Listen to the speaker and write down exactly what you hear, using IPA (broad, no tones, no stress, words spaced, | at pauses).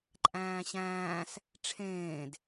ǃʼæ̃ːɕæ̃ːs | ʈ͡ʂʰẽːd